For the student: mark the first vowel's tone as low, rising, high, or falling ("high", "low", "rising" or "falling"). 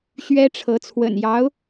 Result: high